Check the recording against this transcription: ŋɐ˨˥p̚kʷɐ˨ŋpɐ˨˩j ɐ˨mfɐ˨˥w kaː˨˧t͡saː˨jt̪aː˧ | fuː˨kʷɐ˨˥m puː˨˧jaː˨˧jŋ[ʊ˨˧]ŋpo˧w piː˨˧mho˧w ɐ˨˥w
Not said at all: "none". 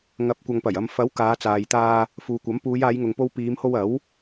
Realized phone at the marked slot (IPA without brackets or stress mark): ʊ˨